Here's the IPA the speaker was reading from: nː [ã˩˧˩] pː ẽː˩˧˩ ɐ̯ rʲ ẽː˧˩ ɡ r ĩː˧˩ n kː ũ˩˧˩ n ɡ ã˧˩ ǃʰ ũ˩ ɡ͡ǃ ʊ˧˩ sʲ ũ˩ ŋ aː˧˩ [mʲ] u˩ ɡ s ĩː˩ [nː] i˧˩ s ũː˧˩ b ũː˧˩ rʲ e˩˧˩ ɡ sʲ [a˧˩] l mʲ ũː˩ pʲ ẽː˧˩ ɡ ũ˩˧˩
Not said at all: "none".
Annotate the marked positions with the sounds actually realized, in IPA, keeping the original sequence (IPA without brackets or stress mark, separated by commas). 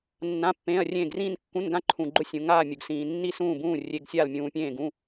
ã˩˧˩, mʲ, nː, a˧˩